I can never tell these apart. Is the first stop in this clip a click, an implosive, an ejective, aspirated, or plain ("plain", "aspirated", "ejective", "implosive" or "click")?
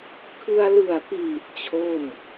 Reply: aspirated